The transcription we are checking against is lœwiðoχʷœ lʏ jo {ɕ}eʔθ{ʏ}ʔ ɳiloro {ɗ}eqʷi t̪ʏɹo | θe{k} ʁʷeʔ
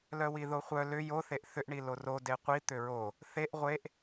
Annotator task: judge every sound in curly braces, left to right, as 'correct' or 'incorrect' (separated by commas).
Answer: incorrect, correct, incorrect, incorrect